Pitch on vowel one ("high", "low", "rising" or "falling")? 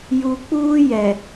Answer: low